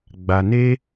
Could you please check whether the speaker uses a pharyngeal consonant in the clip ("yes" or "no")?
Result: no